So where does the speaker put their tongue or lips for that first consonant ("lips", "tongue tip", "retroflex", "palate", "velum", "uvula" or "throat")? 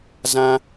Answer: tongue tip